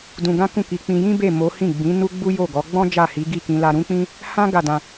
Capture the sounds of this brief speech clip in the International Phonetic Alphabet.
d ũ˧ ɡ ã˦ k ũ˦˨ k i˧ k͡p ĩ˧ j ĩ˦ b e˦˨ m o˨˦ h ĩ˦˨ ɡ͡b ĩ˨˦ n u˦ ɡ͡b u˦ j o˦˨ ɡ ɔ˨˦ ɡ͡b ɔ̃˦ d͡ʒ a˦˨ h i˨˦ ɡ i˦˨ k ĩ˧ l a˧ ɾ ũ˦ k͡p ĩ˦ | h ã˦ ɡ a˦˨ d ã˧

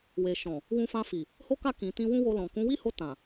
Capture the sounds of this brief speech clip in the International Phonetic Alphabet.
w e˨ ʃ ɔ̃˨ | w ũ˧ f ã˧ f i˨ | h o˦ k a˦˨ k ĩ˨ t ĩ˧ w ũ˦ w o˧ l ɔ̃˨ k ũ˨˦ w i˦ h o˧ t ã˨

